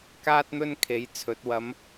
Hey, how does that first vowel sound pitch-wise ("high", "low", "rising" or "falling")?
high